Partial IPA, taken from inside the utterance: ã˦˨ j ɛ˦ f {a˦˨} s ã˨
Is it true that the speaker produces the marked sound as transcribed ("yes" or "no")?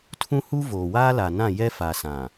no